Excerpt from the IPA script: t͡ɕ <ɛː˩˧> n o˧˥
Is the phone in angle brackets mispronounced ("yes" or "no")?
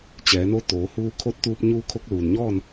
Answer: no